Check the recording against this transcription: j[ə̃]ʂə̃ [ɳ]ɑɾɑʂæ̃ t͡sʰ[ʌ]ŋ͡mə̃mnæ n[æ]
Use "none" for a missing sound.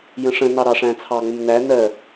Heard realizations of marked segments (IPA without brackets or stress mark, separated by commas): ə̃, n, ɑ, ɜ